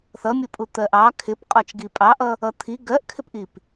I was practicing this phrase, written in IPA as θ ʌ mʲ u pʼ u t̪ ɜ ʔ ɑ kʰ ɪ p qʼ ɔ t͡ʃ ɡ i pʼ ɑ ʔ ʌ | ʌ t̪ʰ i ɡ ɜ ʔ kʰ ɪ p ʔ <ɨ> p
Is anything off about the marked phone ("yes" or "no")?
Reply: yes